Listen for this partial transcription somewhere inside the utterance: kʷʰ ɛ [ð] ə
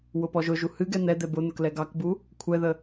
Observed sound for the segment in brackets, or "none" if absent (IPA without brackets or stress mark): ð